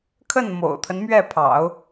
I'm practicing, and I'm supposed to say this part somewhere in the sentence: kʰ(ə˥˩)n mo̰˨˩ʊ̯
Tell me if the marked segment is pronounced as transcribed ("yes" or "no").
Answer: yes